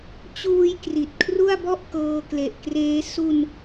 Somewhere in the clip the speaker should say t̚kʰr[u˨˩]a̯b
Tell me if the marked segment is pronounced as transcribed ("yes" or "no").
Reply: no